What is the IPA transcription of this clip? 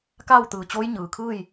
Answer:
kaː˥˨wt̪ɯː˩t͡ɕoː˧˥j ɲɯː˩kʰɯː˥˨j

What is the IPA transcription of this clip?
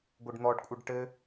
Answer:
ɡʷɘɖn̪ɔɖkʷʼɘɖ ʈɘ

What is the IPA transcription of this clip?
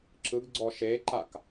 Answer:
ǁɯɡɡ͡ǀɔ ʃeǃak

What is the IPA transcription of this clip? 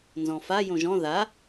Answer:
nzɔ̃fa jõʒɔ̃ ða

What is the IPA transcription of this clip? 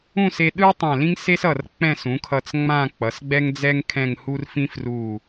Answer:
ũ˥˧se˧ɗɯ˥ tˤã˧˩lĩ˥ŋse˥sʌ˧˩r k͡pɛ̃˥˧sũ˩˧kʰʌ˧t͡s ŋ͡mã˥˧k͡pʌ˩˧sɡ͡bɛ˥ŋd͡zɛ˥ŋ kʰɛ̃˥˧ŋhu˥r fĩ˥fru˧˩

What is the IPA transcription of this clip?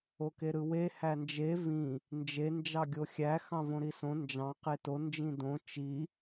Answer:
okeɾɯwe hænd͡ʒe vĩ | nd͡ʒe nd͡ʒɑɡʲoxʲæ xɑ̃võɾisõ nd͡ʒɑ̃ qeto nd͡ʒĩdõ t͡ʃi

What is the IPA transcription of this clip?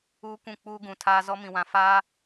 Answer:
uː˦kʷũ˦˨ k͡puː˦ɡũ˨tʰaː˦ zɔ˦mĩ˨wã˨ faː˦

